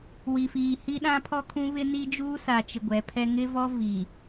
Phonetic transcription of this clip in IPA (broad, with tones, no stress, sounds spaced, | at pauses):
w i˨ f iː˨ h i˦ ɗ ã˦ pʰ ɔ˦ kʰ ũ˦ β ɪ˦ n i˦ d͡ʒ uː˦ s a˨ t͡ʃ ɪ˨ ɡʷ ɛ˨˦ pʰ ɛ˦ ŋ ɪ˦ v ɔ˦ v i˨